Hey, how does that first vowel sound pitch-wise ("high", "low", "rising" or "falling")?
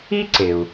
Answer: high